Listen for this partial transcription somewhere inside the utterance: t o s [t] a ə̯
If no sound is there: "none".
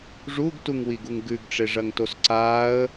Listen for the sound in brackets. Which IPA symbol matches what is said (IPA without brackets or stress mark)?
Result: ǀ